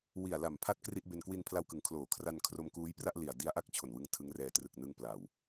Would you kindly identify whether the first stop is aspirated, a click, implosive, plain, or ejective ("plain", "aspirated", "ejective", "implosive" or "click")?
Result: aspirated